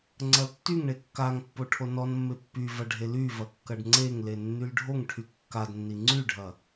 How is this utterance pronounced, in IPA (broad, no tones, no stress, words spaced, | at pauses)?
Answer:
ŋ͡ǀɐltːyŋɳe kːaŋpːo ʈʰonɔnmːe pːyvɐ ɖʱelyvɐ kːɐɖŋ͡ǀeŋle nːylɖʱoŋʈʰy kːadnːi ŋ͡ǀyɖʱɐ